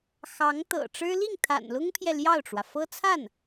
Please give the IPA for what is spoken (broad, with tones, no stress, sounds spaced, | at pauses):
x ɑ˧˥ ŋ t̪ ɤ̰˨˩ ʈ͡ʂ ɻ̩˥ l i˥˩ ŋ t̪ʰ a̰˨˩ n l ʊ˥ ŋ pʰ j ɛ˨ l j ɑ˥˩ ʊ̯ ʈ͡ʂ w ä˩ f ɤ˥ t͡sʰ a˥˩ n